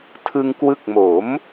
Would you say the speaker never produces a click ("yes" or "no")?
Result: yes